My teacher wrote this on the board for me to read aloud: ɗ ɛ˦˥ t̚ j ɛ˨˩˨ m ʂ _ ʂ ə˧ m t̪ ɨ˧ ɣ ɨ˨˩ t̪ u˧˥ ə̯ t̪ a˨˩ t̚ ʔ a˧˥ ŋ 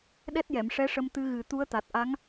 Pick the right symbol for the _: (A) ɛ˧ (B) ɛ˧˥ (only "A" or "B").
B